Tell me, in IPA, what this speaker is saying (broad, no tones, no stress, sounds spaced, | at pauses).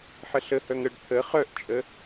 ħ ə ɬ ə h œ ŋ ə ɖ t̪ʰ ə χ œ ʔ t͡ʃʼ ə